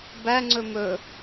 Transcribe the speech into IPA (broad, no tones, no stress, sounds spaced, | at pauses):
b æ ŋ͡ǀ ɵ m ɵ